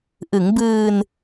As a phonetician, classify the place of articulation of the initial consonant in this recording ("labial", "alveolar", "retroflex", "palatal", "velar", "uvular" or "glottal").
glottal